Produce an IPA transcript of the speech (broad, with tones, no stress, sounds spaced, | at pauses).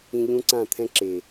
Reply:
ĩ˧ ʎ ũ˦ ǀ ã˦˨ t̪ʰ ɛ̃˦ ǁ e˨